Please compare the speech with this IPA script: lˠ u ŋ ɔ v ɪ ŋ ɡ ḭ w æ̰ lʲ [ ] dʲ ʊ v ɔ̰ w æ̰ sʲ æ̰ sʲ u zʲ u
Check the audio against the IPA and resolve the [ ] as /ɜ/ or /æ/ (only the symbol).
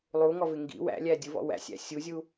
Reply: æ